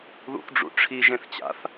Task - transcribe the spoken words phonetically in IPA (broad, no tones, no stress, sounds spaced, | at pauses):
ð ṵ θ ɖ͡ʐ ṵ ʈ͡ʂʰ i ʒ ẽ θ t͡ɕ a̰ θ